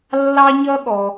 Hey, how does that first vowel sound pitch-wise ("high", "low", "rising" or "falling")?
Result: high